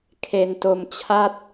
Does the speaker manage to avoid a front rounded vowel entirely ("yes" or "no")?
yes